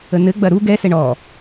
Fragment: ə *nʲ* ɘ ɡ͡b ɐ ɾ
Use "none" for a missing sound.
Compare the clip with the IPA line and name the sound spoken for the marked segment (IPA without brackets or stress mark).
n